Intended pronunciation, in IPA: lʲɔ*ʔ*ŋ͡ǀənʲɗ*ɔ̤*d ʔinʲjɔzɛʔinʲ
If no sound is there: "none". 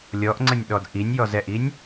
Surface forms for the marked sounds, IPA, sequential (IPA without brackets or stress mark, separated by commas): ʔ, ɔ